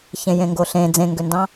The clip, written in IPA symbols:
ç ẽ j ẽ ŋ ɡ o ɬ ẽ d͡z ẽ ŋ ɡ ø n d ɑ̃

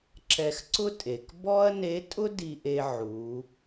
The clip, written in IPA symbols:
ǁ ɛ˧ x ǀ ʊ˥ tʼ e˩ k b ɔ˥ ɐ̯ n e˧˥ tʼ ʊ˥ d i˧ ʔ e˧ ʕ u˩˧

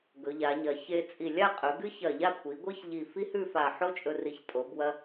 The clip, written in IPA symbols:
ɡ ɵ˩˧ ʎ a˩˧ ɲ ɐ˩˧ ç e˧ t͡sʼ i˧˩ lʲ a˥˧ qʼ ɵ˩˧ ɡ ɨ˥ ç ɐ˧˩ ʎ a˥˧ kʷʰ i˩˧ ɡʷ ɨ˥ ç ʎ i˧˩ f i˥ h ʉ˥˧ f a˧˩ ħ o˥ t͡ʃʼ ɵ˧ r i˧˩ ç tʼ o˩˧ b w ɐ˧

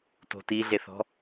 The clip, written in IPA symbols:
t o̤ t i ɮ e θ ɔ̤

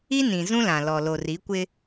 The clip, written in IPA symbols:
i˦ n ĩ˨ z ũ˦ l ã˨ l ɔ˨ l o˨ r i˨˦ kʷ ɪ˦

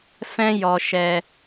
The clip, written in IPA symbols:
f ɛ̃˦ j ɔ˧ ʃ ɛ˧

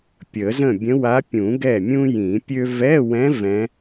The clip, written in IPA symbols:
pʲ ə˨˩˦ z ə̃˥˩ bʲ ə̃˧˥ w a˧˥ pʲ ũ˨˩˦ ɡ ɛ˥˩ mʲ ũ˥ j ĩ˨˩˦ pʲ ø˥ v ɛ˧˥˧ w ɛ̃˧˥ v ɛ̃˧˥

